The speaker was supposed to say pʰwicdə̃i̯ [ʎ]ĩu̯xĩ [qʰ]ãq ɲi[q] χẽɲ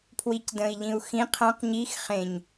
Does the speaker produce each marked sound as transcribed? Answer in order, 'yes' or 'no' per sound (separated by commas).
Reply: yes, yes, no